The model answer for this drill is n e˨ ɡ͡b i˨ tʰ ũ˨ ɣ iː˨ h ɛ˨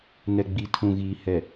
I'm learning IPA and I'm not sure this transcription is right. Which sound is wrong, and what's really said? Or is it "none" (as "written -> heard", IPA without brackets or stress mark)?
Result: e˨ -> ɛ˨